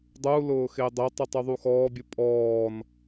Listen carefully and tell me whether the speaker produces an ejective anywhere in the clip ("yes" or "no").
yes